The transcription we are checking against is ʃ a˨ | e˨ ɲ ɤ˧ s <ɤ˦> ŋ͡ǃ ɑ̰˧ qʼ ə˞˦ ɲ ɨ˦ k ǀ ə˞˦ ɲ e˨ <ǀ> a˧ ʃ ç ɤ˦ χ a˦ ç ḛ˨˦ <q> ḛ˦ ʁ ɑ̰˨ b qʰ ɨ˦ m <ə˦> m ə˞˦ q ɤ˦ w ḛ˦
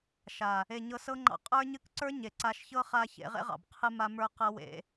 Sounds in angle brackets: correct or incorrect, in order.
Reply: correct, correct, incorrect, incorrect

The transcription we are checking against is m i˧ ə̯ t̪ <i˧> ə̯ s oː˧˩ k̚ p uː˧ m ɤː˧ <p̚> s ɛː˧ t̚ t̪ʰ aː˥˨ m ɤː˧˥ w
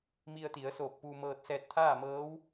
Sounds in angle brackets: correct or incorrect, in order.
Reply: incorrect, incorrect

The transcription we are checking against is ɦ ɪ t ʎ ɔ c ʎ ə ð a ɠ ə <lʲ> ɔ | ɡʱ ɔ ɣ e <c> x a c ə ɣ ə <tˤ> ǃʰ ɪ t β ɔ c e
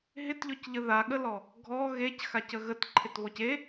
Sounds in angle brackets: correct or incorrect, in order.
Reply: incorrect, correct, incorrect

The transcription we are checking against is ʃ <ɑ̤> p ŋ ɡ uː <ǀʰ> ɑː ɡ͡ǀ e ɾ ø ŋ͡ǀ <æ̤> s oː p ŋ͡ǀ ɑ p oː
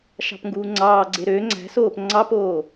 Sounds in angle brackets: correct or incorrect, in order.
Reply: correct, incorrect, correct

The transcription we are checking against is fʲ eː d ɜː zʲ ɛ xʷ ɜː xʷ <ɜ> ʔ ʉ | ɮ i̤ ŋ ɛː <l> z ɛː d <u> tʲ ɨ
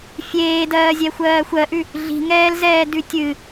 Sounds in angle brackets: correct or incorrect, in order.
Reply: correct, correct, incorrect

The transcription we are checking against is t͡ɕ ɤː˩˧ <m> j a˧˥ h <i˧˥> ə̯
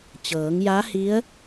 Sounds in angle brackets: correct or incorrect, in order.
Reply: incorrect, correct

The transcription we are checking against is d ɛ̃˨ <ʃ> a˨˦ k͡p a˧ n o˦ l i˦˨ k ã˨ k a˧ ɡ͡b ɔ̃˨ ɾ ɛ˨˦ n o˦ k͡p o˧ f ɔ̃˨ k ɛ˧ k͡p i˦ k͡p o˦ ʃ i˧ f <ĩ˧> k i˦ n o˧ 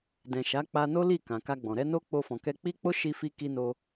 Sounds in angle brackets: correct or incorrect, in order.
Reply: correct, incorrect

